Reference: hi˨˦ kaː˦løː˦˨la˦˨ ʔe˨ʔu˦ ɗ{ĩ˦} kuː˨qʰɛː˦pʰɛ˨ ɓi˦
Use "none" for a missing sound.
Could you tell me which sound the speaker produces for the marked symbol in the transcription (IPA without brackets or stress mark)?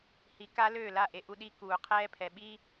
i˦